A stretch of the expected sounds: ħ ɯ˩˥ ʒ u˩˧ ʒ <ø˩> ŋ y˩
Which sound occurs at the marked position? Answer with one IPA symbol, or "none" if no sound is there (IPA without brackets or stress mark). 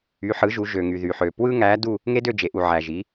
ø˩